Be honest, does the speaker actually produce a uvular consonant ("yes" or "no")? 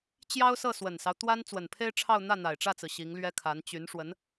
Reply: no